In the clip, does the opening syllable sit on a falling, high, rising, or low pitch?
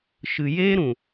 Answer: low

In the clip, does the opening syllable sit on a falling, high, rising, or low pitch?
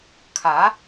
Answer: rising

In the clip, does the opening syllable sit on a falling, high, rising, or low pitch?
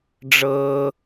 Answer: low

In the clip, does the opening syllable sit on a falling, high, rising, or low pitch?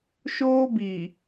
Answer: high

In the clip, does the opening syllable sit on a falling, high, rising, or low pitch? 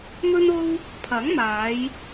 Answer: high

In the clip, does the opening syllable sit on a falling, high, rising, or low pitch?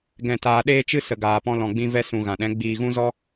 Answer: low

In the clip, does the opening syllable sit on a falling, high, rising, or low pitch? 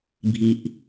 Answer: low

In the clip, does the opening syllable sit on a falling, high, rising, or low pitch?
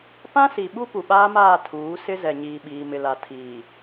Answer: high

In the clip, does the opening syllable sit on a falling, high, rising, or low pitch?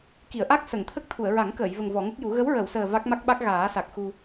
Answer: low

